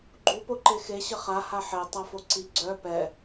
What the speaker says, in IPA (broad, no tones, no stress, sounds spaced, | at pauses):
ɡ͡ǃ u p o ǃ e x e ɕ ə χ a h a ħ e tˤ a f o ǀ i ɡ͡ǀ œ p ɛ